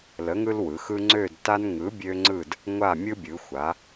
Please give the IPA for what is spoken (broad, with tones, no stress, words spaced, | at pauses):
lə˨˥ŋɯ˦lwɯ˩˧xɯ˦ ŋ͡ǀø˦˨dta˦n ŋɯ˨˥bʲø˦ŋ͡ǀɯ˦˨d | ŋʷa˦˨mʲɯ˦ bʲɯ˩˧xʷa˩˧